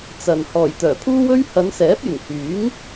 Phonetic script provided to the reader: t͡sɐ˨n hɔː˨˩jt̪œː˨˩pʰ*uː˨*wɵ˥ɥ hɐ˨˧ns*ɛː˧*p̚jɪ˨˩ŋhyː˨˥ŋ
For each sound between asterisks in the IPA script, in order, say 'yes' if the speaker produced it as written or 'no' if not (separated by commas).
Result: no, no